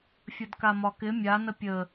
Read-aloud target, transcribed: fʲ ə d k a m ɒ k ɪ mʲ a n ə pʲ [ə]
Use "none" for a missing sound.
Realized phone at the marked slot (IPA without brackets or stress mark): ə